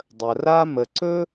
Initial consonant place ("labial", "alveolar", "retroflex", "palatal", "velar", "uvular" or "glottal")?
alveolar